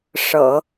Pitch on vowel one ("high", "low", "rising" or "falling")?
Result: low